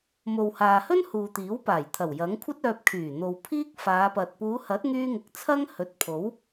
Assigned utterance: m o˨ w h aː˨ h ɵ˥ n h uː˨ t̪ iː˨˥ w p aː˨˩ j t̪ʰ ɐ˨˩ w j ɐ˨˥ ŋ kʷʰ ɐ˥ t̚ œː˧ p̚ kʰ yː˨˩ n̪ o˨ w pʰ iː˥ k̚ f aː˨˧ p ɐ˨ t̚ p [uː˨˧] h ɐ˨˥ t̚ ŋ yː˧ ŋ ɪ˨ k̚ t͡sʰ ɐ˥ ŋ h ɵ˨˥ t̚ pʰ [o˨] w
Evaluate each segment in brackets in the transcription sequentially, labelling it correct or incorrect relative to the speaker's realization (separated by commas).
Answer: correct, incorrect